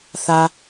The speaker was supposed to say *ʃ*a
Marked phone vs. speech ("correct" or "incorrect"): incorrect